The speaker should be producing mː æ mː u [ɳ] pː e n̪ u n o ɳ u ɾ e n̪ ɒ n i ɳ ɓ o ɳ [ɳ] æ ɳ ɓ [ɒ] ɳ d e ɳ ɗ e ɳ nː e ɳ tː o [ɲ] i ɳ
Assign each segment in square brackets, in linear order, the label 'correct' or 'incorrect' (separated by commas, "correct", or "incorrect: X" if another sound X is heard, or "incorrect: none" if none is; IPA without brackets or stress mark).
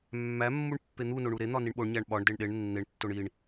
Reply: correct, incorrect: ɲ, correct, incorrect: ɳ